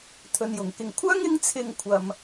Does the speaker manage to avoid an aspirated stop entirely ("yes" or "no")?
no